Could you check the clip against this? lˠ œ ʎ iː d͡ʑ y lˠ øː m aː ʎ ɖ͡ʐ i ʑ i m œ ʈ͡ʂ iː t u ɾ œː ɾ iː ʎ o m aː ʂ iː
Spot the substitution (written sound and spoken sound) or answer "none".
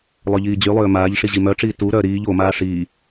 ɖ͡ʐ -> ʂ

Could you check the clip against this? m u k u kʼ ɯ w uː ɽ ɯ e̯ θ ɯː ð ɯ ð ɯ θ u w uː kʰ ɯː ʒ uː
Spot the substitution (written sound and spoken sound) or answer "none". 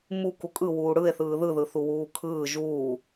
none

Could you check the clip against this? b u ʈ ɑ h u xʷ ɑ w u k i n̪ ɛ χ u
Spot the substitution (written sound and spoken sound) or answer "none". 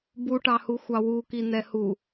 χ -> h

